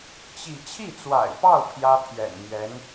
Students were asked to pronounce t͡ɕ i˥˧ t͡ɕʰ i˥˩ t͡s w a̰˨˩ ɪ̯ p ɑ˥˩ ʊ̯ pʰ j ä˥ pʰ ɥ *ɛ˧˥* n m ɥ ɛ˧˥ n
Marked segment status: incorrect: ɛ̰˨˩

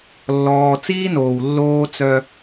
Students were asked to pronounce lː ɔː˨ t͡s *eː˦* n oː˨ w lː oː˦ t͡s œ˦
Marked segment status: incorrect: iː˦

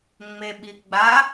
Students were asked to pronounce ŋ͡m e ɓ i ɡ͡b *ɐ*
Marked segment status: incorrect: a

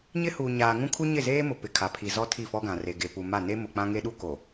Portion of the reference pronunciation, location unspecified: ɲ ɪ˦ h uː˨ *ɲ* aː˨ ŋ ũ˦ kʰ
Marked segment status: correct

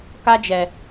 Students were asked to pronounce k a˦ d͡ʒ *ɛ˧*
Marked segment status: correct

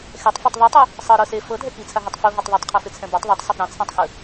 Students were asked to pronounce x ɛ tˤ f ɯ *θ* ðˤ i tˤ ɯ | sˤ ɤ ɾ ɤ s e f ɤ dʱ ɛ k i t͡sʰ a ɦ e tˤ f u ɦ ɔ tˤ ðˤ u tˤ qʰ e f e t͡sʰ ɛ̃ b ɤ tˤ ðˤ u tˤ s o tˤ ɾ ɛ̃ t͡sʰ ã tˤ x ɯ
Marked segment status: incorrect: tˤ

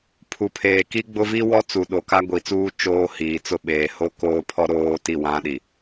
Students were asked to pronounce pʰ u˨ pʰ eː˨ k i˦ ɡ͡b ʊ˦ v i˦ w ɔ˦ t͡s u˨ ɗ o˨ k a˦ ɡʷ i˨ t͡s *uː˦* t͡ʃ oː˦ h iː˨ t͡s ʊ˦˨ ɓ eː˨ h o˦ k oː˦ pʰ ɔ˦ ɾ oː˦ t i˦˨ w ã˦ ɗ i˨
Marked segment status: correct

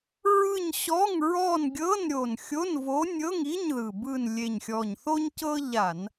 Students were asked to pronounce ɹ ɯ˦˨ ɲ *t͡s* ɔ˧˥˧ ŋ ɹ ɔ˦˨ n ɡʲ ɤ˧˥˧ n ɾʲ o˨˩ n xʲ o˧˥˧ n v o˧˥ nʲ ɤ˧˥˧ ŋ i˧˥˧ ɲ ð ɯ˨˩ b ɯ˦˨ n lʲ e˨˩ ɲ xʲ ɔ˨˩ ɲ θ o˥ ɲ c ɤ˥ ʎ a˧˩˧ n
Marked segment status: incorrect: ɕ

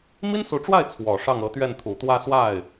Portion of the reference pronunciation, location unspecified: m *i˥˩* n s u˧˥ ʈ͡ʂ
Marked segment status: incorrect: i˥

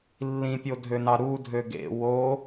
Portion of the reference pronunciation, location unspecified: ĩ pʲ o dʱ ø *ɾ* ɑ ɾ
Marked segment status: incorrect: n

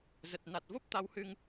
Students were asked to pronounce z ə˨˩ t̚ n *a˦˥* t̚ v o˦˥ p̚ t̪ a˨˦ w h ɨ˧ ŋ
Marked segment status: incorrect: a˨˩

